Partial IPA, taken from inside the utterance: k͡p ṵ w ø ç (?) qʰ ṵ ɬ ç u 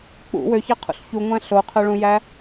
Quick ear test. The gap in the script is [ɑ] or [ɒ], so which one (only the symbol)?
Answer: ɑ